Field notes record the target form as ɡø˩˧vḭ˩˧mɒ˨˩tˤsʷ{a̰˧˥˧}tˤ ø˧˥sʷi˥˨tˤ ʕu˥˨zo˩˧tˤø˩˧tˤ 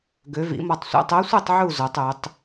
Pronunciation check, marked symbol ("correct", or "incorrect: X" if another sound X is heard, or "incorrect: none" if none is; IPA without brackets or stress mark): correct